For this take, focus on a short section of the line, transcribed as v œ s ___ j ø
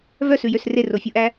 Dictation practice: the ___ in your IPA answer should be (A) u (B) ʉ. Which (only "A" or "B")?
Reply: B